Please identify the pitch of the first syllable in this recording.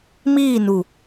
falling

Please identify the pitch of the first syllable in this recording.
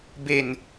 low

